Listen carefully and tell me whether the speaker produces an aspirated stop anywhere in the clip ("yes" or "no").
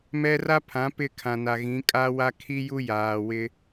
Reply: yes